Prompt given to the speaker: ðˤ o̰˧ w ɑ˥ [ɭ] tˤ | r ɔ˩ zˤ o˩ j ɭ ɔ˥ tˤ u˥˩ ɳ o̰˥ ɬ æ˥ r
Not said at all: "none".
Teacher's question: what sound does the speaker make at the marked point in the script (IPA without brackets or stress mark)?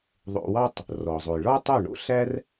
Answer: none